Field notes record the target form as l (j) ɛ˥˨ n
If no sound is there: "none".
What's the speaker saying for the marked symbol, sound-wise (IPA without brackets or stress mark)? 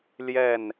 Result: j